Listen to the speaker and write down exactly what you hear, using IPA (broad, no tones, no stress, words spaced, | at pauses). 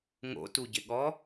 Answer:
ŋo̰tuɟɪɠɔ